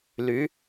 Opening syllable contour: rising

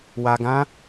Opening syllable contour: low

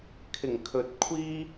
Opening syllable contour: low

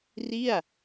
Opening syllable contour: falling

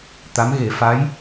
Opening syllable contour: rising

